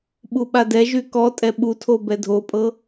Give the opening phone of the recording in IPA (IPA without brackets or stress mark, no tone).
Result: ɓ